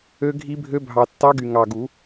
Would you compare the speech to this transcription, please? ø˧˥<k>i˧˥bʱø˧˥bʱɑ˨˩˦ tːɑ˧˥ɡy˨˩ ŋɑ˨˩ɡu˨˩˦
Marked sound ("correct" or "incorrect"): incorrect